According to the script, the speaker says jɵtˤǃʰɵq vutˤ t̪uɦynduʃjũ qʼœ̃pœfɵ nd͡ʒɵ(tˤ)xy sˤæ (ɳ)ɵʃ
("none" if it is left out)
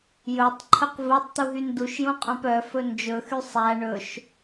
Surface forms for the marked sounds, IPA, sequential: none, ɳ

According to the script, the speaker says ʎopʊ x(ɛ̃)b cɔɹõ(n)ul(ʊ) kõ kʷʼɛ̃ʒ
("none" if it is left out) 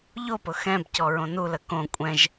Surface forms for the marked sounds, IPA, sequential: ɛ̃, n, ə

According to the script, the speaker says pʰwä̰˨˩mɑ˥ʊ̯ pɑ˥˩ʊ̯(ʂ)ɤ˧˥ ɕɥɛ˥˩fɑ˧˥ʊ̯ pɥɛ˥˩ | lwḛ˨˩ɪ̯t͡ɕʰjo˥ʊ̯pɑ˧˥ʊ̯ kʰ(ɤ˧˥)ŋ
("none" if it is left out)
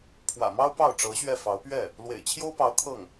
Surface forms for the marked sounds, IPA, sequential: ʈ͡ʂ, ɤ˥˩

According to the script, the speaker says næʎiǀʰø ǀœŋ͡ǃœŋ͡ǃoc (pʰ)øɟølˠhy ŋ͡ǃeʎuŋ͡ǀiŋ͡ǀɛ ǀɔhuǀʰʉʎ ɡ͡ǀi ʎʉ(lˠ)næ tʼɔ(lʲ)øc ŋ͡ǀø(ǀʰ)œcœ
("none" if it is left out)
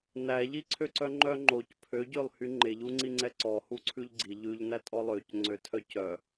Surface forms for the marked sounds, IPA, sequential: pʰ, ʎ, lˠ, tʰ

